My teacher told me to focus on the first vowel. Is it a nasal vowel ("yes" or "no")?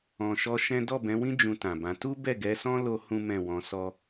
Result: yes